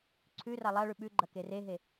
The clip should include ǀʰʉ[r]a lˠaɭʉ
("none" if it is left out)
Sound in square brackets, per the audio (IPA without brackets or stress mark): r